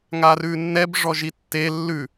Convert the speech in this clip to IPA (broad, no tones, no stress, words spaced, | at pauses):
ŋarʉnːɛb ʐɔʒitːe lːʉ